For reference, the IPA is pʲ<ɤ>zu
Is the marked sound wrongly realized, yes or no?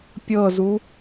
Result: no